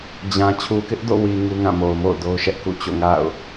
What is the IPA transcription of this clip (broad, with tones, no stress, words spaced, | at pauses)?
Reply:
d͡ʑã˨ t͡ɕʰu˨kɪ˦ʔdo̰˦˨ wi˨ ŋu˦ŋã˦˨mo˨ʊ̯mo̰˦˨ʊ̯ do˦ʊ̯ʃɛ˦ʔkṵ˦˨ t͡ɕo̰˦˨ŋa̰˦˨ʊ̯